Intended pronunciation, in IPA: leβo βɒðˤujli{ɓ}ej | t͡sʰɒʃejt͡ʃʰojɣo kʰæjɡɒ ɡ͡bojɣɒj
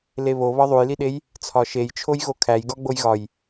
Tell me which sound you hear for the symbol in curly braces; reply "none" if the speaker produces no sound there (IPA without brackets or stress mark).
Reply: ɗ